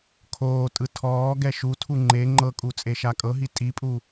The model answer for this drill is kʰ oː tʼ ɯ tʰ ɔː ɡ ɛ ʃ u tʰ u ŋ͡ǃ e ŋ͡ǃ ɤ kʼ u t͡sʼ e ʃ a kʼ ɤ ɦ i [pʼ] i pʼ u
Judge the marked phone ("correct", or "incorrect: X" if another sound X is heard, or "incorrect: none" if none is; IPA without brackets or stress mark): incorrect: tʼ